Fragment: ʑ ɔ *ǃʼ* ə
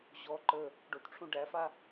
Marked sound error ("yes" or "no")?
yes